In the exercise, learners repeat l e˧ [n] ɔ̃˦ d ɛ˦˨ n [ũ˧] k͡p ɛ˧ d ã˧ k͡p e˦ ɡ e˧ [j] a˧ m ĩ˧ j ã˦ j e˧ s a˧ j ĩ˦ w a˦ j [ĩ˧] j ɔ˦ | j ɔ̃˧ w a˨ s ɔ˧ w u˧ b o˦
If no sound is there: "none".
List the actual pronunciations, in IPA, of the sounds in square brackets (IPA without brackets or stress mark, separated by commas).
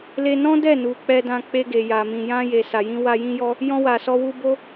n, u˧, j, ĩ˦